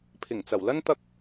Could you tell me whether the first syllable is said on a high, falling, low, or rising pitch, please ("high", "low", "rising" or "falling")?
low